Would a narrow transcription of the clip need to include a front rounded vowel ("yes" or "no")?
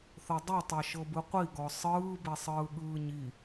no